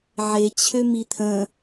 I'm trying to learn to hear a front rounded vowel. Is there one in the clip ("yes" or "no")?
yes